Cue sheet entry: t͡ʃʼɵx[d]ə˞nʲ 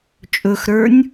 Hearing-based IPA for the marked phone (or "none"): ɾ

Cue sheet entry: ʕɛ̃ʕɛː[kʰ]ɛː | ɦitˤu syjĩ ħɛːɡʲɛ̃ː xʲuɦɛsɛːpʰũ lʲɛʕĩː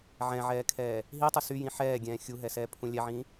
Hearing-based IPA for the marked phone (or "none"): kʰ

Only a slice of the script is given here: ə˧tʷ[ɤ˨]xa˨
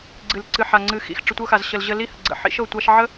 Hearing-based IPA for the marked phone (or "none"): ɤ˧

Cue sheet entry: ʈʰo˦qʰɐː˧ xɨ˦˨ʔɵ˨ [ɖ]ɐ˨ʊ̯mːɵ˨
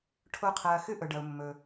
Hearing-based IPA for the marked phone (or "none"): ɖ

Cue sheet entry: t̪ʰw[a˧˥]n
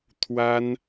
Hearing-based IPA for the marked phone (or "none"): a˥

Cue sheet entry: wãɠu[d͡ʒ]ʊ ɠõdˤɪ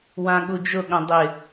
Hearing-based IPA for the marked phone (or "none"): d͡ʒ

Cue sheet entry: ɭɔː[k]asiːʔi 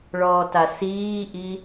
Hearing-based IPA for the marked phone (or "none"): t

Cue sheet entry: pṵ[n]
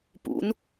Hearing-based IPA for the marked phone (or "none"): n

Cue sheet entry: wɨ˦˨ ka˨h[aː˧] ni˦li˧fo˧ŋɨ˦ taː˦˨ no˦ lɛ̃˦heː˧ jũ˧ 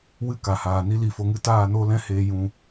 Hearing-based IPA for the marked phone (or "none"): aː˨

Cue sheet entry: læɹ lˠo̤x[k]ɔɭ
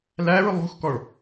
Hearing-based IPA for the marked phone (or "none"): k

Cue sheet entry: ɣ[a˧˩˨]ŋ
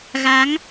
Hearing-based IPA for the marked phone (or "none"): a˨˦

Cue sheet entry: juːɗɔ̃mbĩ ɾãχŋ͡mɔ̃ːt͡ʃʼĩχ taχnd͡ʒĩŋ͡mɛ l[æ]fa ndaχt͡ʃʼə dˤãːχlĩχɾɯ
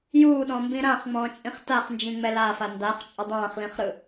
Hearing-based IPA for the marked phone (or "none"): a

